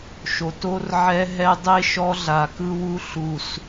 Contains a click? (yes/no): no